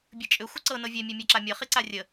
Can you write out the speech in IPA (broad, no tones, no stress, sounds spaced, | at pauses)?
bʲ ɨ t͡ʃʼ ʏ xʷ ə ǀ ɤ n ɤ vʲ e mʲ e mʲ a ǁ a mʲ ɤ χ i ǀ a rʲ ə